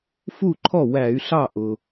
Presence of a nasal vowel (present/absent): absent